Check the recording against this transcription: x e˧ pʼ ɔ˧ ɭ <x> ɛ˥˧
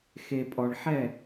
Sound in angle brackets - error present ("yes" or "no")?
yes